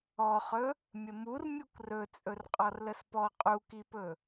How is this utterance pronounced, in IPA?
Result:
ɔχɵ | mʲəmur mʲukʷrɵ t͡sʼɵrqʼɔrləspɔ qʼukipɵ

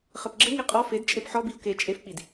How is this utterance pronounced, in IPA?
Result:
χɘpɡ͡ǁɘŋi qʼɔ fed t͡ʃʼepħɔbiʊ̯ ke t͡ʃʼefk͡pid

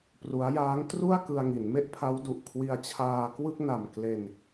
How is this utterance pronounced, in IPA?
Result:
pru˦˥a̯ jaː˦˥ŋtru˥˩a̯ kɯ˧a̯ŋi˩˦nme˥˩ʔpʰa˦˥w du˨˩ʔkʰwi˧a̯ t͡ɕʰaː˧kwɯ˥˩k̚na˨˩m kle˧n

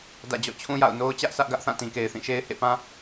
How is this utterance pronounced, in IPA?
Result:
dä̰˦˨ d͡ʑɔ̰˦˨t͡ɕʰũ˦ja̰˦˨ʊ̯ no˦ʊ̯t͡ɕä˦ʔ sä˦ʔɡä˦ʔ θã˦˨tĩ˨ke˨ɪ̯ θĩ˦˨ʃe˦ɪ̯ hḛ˦˨pã˦

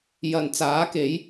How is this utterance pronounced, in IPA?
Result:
jɐ˨˩n t͡saː˨˥ke˨˥j

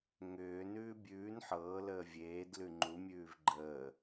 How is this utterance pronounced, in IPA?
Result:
ŋʏːnʉː bʲʉːn ħɤːləː vʲeːd lʉŋ͡ǃu mʲʉːvɡ͡ǃəː

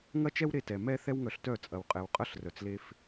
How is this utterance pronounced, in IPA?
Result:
ŋɐ˦t͡ʃɛ˦wɾe˧tɛ˨ mɛ˦ θɛ˦wŋœ˧ɬtœ˦˨ t͡sʼɐ˨wqʼɛ˨wqʼɐ˦˨ɬ rœ˨t͡sle˧f

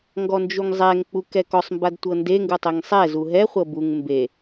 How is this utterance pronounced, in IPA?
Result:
ŋɡɔnd͡ʒuŋzˤɛŋk͡pu kɛkɔsˤmbad tʷɤndeŋɡu tˤeŋsˤɛzu ɦɛχʷɤ buŋ mbe

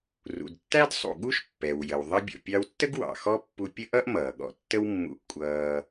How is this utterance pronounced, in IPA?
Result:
rṵ˩dtːæ˥d sˤṵ˩ɠu˥ʃ pːɛ˩wjə˩w ðˤʌ˥ bʲɔ̰˩pʲɑ˧wtːə˥ɡ wɑ̰˩xɔ˥pːu˧ pʲə˥ʔʌ˥ʔ mʌː˩ɠɔ̰˧ tːə˥wmːṵ˧ʔ kʷʼʌː˧

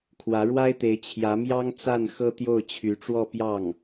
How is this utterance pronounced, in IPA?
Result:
kʰwä˧˥ɻwa˥ɪ̯t̪e˧˥ɪ̯ t͡ɕʰjä˧˥mjɑ˥ŋ t͡sa˥˩n xɤ˥t̪jo˥˩ʊ̯ t͡ɕʰy˧˥ʈ͡ʂwɔ˥˧ pjɑ˥˩ŋ

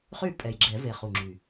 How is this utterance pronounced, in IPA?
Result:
χy˥˩ pʼɛ˨˩jɡ͡ǁɛ˨˩˦ve˨˩ χu˨˩ŋ͡ǁy˨˩

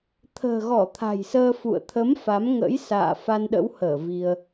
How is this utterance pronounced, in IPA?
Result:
t̪ʰə̤ː˨˩ɣɔ˧˩ t̪ʰa̤˨˩jsəː˧fṵ˧˨ə̯ t̪ʰə˨˦m fa˨˦mŋə̰˧˥jsa̰ː˧˨ fa˧nɗə̰˧˥whəː˧˩ vi˧ə̯

